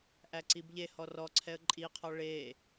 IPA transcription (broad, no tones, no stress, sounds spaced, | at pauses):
ʔ æ ǀ i b ʎ e h ɔ r ɔ ǀʰ ɛ ə̯ ǃʼ i qʰ ɔ ɭ e